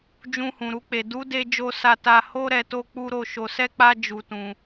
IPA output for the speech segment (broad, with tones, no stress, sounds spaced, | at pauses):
d͡ʒ ũ˧ h ũ˨ ɾ u˧ k͡p e˨ d u˨˦ d e˧ d͡ʒ o˧ s a˧ t a˧ h o˦ ɾ ɛ˧ t o˦ k͡p u˦ ɾ o˧ ʃ o˧ s ɛ˦ k͡p a˦ d͡ʒ u˧ t ũ˧